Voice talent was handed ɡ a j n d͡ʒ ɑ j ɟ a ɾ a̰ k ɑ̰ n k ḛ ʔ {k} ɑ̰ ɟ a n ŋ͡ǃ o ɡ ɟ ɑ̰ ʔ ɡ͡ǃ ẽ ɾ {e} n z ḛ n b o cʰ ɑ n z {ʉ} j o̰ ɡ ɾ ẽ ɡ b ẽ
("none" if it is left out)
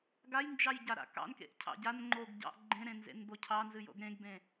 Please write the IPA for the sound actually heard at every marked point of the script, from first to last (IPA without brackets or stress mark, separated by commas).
cʰ, ẽ, ɨ